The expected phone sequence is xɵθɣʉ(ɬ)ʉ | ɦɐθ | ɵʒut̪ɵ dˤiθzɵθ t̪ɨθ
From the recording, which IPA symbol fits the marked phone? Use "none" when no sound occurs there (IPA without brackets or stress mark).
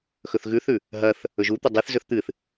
θ